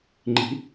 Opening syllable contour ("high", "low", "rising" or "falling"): rising